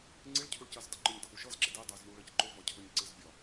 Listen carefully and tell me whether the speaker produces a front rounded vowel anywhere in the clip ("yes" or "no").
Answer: no